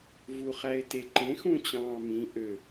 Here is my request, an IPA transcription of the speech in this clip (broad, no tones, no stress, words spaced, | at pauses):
vuχæɪ̯teǃẽ xũt͡ɕɑ̃ːmĩ ʔø